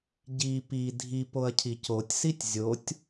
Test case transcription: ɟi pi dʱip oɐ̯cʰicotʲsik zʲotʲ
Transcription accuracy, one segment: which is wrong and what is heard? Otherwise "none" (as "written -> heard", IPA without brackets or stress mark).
k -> tʲ